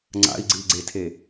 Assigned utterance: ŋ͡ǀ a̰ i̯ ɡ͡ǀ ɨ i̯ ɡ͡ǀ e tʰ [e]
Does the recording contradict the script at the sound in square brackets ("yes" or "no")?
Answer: no